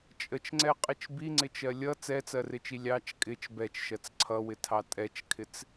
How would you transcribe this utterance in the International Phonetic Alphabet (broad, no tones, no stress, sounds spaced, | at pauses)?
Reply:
t͡ʃʼ ə t͡ʃ ŋ͡ǀ ɛ qʼ ɪ t͡ʃ b i ŋ͡ǀ ɪ t͡ʃ ɜ lʲ ʌ t͡s ɛ t͡s ɜ r ɪ t͡ʃ i lʲ ɑ t͡ʃ kʼ ɪ t͡ʃ b ɛ t͡ʃ ʃ ɜ t͡s ǀʰ ʌ w ɪ tʰ ɑ tʼ ɛ t͡ʃ kʰ ɪ t͡s